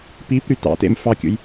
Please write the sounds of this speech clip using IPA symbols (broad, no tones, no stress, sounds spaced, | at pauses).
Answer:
p i p ɾ y t ɑ̰ t ḛ m f ɑ kʲ ṵ j